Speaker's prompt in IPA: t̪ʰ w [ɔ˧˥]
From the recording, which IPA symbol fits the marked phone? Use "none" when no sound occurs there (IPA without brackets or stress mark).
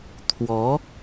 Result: ɔ˧˥